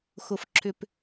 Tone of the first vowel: low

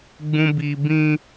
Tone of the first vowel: low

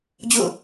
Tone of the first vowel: falling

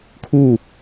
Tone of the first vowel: falling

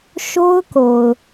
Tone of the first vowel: high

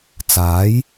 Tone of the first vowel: rising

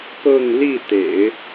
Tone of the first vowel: falling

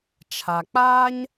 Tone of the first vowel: low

